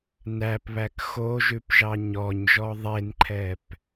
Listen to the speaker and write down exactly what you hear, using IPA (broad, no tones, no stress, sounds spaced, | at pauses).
n æ p β æ k x o ʒ ʉ p ʒ ɑ ɲ ɔ ɲ ʒ ɔ ðˤ e n ǃʰ ɛ p